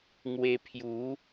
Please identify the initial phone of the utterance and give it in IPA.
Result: ŋ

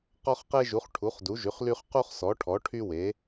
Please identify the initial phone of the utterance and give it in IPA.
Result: q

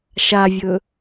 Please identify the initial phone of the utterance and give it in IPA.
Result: ʃ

